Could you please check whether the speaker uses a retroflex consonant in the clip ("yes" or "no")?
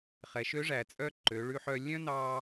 yes